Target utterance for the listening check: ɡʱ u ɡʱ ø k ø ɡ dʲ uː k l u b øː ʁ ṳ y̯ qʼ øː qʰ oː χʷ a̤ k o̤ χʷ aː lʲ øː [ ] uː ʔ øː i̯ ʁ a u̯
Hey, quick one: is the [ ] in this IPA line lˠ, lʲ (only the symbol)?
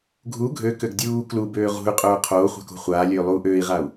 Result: lˠ